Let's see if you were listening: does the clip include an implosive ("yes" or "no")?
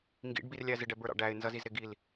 no